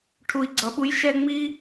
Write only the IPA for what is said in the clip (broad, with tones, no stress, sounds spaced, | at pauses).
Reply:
ʈʰ u˨ i̯ ɡ͡ǀ ʌ˨ ɓ u˦ j ʃ ɛ˦ ŋ͡m i˦